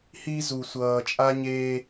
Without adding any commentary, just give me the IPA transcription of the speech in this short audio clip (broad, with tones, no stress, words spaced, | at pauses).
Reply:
hi˦ zu˨sʷʌː˨t͡ʃʼa˦ɲe˦